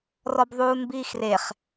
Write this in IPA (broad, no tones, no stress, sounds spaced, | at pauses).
r ɔ b ðˤ uː n b iː x r e χ